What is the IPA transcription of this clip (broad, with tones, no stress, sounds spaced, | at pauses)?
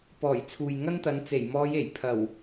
p ɔː˨˩ j t͡sʰ uː˨ j ŋ ɐ˥ n t̪ ɐ˨˧ n t͡s e˨˩ j m ɔː˨˧ j e˨˩ j pʰ ɐ˨˩ w